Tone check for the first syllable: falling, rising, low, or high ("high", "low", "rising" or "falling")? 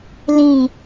low